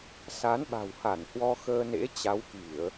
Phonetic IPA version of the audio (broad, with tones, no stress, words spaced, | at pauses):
sa˨˦nɓa̤˨˩wha˧˩n hwɔ˧xəː˧nḛ˧˥ t͡ɕa˨˦wki˧˩˨ə̯